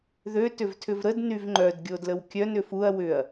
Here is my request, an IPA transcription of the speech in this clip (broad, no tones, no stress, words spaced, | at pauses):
ðø tʏvtʰʏvɾəd nyvŋ͡ǃœd ɡʲodləwkʲœn ʏfuɐ̯ wʏɐ̯